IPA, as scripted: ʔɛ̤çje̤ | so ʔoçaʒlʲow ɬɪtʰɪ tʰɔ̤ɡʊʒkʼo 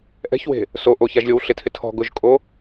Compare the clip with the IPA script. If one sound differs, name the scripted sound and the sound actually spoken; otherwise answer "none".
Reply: j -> w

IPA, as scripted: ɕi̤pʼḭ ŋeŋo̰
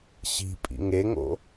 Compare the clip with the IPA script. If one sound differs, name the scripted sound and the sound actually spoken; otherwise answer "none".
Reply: none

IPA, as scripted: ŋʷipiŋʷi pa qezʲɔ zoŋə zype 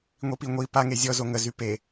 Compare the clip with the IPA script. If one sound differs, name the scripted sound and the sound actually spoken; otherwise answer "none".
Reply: q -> ŋ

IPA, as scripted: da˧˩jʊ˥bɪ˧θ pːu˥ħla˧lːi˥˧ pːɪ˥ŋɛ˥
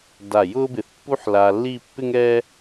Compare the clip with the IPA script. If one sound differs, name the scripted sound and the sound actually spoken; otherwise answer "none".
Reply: none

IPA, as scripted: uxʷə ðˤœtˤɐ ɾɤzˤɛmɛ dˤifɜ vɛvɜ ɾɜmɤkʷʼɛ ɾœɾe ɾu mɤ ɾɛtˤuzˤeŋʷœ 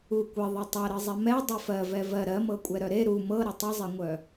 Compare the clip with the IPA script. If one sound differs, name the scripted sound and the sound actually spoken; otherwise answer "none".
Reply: xʷ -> kʷ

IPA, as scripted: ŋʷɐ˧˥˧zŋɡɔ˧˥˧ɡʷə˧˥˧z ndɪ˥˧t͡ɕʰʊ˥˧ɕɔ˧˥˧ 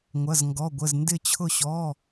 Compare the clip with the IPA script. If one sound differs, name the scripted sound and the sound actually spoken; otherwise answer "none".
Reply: none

